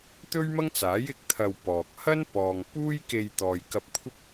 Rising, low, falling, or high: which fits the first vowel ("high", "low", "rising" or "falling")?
high